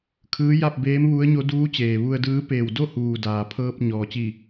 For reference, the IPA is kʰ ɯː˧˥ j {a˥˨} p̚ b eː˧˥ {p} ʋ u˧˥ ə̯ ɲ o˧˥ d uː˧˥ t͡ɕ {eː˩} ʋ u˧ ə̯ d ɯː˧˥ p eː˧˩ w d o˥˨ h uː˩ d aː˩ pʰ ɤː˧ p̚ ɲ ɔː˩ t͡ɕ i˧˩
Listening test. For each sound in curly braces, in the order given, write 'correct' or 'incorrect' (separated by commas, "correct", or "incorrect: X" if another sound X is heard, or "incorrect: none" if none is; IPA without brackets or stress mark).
correct, incorrect: m, correct